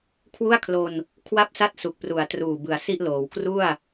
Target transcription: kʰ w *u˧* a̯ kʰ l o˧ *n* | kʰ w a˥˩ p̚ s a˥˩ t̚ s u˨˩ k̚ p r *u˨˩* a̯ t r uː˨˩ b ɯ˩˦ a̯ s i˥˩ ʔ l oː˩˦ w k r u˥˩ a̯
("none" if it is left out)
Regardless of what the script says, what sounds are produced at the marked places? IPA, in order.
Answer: u˥˩, n, u˨˩

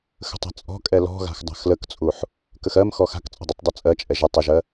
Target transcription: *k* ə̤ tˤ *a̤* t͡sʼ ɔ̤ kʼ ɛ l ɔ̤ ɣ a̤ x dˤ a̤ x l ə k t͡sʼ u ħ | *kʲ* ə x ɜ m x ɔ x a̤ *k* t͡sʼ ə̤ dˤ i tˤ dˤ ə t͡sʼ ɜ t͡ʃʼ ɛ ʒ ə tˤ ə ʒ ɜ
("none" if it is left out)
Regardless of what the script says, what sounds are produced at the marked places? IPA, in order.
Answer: x, a̤, k, k

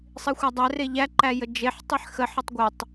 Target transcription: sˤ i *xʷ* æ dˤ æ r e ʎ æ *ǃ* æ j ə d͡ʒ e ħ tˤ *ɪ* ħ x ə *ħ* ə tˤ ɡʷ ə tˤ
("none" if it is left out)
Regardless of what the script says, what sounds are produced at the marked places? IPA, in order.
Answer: xʷ, ǃ, i, ħ

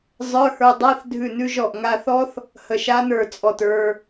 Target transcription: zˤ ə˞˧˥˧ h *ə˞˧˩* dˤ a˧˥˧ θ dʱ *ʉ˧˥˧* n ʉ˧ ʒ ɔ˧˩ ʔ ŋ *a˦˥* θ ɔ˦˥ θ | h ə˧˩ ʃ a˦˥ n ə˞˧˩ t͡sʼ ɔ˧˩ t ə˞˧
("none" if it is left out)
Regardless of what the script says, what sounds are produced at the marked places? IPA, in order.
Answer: ə˞˧, ʉ˧˩, a˧

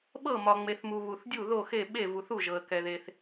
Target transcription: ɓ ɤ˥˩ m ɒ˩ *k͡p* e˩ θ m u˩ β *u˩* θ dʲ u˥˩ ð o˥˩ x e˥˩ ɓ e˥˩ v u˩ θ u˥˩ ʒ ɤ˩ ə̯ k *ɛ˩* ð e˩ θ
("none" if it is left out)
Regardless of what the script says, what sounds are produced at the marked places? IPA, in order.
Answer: ŋ͡m, u˩, ɛ˩

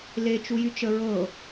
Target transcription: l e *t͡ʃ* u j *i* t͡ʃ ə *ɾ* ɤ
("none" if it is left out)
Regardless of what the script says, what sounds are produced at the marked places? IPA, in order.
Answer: t͡ʃ, y, ɹ

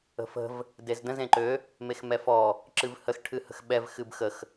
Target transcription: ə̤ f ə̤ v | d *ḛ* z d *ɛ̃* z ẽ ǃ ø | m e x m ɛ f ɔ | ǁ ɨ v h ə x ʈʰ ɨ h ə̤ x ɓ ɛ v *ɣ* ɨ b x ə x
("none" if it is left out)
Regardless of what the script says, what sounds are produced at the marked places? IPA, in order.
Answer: e, ə̃, x

